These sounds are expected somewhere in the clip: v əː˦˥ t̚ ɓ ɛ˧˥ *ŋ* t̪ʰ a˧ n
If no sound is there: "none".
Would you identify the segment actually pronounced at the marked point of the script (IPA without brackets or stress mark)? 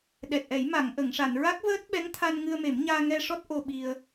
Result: ŋ